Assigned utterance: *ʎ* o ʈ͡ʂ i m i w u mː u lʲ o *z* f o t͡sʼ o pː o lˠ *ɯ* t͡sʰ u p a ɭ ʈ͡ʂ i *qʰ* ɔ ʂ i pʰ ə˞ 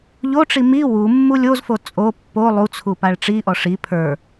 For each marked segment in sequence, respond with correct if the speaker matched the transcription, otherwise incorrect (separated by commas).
correct, correct, incorrect, incorrect